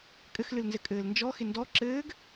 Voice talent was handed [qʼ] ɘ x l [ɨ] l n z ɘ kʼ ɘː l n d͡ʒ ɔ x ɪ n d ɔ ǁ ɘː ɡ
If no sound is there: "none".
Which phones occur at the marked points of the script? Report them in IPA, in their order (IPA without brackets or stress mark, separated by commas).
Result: kʼ, ɨ